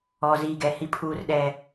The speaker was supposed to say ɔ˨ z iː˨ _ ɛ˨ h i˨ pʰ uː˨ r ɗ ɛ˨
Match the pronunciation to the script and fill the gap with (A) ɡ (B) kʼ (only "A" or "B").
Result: A